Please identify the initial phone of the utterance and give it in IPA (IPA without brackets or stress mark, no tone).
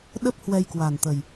ɗ